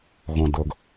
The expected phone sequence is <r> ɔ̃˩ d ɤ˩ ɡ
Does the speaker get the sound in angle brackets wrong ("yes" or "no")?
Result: yes